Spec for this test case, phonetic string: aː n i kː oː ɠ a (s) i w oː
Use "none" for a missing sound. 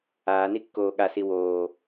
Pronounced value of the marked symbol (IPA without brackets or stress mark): s